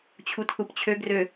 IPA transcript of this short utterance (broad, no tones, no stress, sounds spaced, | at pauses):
t͡ɕʰ u t θ u p t͡ɕʰ ø ɡ r ø